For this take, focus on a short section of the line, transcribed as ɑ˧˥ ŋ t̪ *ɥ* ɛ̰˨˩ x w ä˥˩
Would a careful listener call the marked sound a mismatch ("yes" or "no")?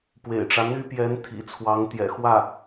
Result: yes